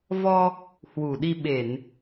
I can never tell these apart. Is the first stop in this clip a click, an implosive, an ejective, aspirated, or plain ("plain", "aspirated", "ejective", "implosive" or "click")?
implosive